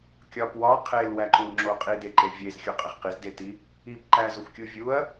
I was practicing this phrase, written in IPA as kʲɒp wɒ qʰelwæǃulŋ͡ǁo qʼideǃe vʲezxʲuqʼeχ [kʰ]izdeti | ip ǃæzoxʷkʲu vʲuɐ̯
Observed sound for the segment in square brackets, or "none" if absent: q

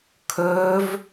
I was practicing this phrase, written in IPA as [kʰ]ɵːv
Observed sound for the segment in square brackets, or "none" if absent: kʰ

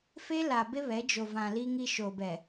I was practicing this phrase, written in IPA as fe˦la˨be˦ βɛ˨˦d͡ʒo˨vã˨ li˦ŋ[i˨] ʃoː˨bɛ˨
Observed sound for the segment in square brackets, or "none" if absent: i˦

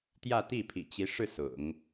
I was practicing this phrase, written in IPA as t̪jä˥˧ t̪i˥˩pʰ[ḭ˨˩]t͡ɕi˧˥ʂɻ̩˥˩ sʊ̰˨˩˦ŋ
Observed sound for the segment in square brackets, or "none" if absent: ḭ˨˩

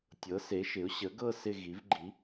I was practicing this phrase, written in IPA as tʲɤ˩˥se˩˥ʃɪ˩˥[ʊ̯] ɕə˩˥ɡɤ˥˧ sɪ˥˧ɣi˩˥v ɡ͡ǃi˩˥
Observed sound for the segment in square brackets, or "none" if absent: ʊ̯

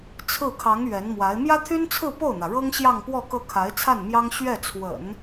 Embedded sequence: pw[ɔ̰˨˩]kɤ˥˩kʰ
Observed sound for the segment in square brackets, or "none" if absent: ɔ˥˧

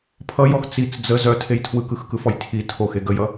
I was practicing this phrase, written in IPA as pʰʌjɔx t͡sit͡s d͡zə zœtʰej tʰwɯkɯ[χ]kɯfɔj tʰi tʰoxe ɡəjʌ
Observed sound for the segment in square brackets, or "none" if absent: x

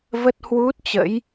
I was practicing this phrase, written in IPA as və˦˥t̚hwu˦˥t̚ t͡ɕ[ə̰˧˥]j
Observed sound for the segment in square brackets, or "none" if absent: ə̰˧˥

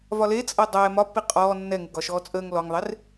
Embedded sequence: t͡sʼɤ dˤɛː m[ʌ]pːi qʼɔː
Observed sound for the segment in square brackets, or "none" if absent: ɒ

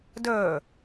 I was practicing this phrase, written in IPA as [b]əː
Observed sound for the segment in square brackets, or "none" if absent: d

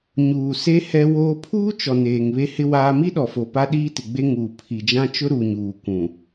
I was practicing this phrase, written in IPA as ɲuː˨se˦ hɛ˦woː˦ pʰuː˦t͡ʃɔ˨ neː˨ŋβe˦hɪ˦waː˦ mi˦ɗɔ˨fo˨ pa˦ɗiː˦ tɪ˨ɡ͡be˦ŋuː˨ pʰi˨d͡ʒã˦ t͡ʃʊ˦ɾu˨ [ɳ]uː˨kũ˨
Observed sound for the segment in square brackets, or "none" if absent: ɲ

